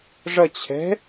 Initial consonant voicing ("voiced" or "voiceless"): voiced